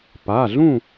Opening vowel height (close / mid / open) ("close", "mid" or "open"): open